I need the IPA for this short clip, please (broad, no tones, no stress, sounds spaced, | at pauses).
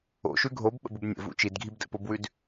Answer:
o̰ ʃ ʉ ɡʱ o b ɓ ə̰ b u b nʲ ə̰ v ṵ t͡ʃ i d ɡʱ i b d ə̰ p o b w ʉ d